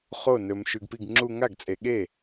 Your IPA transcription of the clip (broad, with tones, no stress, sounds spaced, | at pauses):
χ o˥˩ n ɵ˨ m ʃ ʉ˨ ɡ p i˥˩ ɡ ŋ͡ǁ u˦ ŋ a˥˩ ɡ t͡sʼ e˨ ɠ e˥˩